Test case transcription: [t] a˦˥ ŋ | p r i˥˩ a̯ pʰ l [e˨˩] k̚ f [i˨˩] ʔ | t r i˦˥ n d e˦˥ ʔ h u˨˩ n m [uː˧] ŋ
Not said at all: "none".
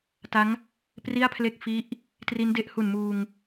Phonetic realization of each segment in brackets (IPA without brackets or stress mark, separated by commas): t, e˥˩, i˦˥, uː˧